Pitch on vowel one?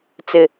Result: high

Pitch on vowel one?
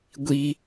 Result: high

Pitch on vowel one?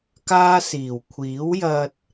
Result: high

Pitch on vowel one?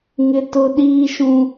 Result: high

